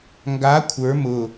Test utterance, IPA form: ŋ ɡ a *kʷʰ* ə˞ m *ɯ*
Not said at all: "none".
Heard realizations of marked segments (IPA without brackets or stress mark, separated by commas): kʷʰ, ʊ